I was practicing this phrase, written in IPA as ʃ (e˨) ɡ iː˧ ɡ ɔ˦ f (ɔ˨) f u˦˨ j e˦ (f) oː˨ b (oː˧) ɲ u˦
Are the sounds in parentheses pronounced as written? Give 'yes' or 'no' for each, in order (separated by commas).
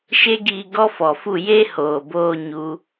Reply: no, yes, no, yes